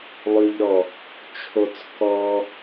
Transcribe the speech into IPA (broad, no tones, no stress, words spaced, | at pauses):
lˠʉʎɾɔ | t͡ʃʰot͡s kɔ